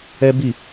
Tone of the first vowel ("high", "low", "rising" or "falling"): high